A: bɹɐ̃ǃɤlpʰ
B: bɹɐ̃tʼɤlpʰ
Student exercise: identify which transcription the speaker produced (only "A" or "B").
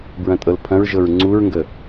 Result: B